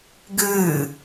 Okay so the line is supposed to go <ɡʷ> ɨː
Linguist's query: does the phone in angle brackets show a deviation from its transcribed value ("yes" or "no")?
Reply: yes